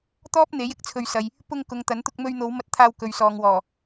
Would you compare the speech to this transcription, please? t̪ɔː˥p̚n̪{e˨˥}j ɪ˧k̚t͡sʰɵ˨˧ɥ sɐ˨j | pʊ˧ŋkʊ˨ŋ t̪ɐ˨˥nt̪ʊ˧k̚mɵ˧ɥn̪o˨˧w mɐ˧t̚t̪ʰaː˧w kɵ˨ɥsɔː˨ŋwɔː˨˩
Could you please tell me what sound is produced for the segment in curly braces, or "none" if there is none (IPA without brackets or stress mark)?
e˨˥